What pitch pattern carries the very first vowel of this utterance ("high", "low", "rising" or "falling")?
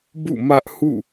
falling